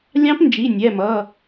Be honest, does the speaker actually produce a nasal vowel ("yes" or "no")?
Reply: yes